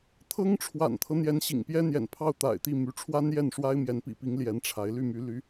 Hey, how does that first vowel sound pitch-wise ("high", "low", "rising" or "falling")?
high